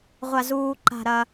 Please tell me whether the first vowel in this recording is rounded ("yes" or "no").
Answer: no